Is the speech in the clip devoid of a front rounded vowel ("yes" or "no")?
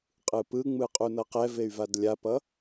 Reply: no